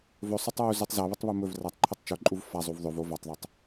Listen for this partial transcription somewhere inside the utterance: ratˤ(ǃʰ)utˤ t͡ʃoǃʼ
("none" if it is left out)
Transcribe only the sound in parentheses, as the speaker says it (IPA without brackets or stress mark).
ǃʰ